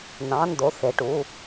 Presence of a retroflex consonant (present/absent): present